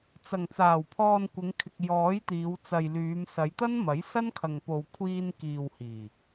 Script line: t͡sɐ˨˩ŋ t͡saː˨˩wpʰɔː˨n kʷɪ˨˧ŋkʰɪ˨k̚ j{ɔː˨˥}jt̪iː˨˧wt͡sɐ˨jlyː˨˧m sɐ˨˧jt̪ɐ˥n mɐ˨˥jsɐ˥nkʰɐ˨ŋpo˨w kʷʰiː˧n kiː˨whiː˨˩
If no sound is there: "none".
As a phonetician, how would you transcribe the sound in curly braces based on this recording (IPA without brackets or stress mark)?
ɔː˨˥